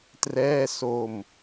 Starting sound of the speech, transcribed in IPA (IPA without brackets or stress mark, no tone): t